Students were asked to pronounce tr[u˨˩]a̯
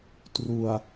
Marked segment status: correct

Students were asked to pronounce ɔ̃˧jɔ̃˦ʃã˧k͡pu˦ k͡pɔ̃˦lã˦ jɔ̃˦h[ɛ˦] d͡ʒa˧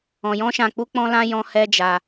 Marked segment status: correct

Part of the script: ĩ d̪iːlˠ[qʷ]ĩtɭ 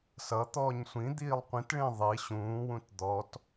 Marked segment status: correct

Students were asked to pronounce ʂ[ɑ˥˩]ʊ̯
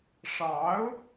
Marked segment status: incorrect: ɑ˧˥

